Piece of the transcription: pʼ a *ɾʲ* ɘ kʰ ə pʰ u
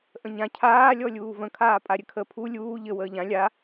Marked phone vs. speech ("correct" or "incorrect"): correct